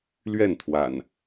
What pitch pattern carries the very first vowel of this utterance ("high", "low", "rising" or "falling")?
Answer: falling